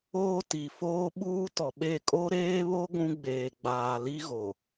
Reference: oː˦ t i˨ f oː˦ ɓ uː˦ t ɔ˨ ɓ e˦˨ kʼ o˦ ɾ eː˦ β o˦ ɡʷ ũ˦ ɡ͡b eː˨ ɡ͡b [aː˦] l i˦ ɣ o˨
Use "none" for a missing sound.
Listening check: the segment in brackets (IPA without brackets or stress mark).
aː˨